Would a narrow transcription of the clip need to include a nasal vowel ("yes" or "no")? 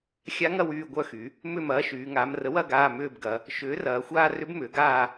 no